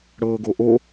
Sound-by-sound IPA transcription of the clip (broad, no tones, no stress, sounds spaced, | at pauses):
ɽ ɤː ɡ o ʔ o